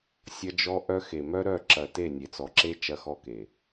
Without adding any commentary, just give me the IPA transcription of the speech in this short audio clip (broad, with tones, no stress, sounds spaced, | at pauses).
sʲ ɐ˦ d͡ʒ ɔ˦ ʔ œ˦ x e˨ m œ˦ ɾ œ˦˨ ǁ ɐ˨ t e˦˨ nʲ e˨ t͡s ɔ˨ ǁ e˦ t͡ʃ ɐ˦ x ɔ˦ k e˨